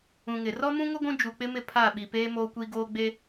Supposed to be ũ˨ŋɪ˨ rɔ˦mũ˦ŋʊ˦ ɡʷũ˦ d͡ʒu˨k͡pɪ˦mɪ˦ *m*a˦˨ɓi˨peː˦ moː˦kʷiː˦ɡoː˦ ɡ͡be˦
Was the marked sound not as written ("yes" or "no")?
yes